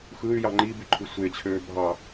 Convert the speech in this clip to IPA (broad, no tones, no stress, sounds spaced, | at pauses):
x ɯ y̯ j ɑ ŋ͡ǃ i b y ǃʰ ɯ sʷ e t͡ɕʰ øː bʱ ɑ